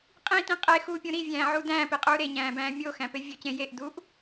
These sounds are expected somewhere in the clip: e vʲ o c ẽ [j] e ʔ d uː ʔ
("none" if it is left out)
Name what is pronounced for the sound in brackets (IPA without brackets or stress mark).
j